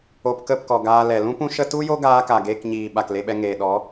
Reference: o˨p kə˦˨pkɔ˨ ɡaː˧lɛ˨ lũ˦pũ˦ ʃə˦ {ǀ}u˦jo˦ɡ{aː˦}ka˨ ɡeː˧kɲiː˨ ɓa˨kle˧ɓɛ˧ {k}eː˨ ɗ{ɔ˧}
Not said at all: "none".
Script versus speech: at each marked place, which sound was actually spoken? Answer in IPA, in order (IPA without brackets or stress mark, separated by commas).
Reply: t, aː˧, ŋ, ɔ˨˦